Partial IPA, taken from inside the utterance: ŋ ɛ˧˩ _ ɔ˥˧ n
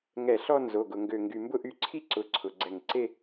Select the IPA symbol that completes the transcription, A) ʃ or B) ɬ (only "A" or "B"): B